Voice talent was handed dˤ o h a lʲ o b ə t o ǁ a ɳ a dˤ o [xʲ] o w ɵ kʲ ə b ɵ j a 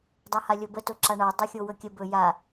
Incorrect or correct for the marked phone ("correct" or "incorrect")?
correct